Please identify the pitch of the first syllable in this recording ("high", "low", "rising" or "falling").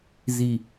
low